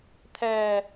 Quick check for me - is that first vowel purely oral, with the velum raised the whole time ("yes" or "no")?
yes